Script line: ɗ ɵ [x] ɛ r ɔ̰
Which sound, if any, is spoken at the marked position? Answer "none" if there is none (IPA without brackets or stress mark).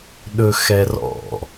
x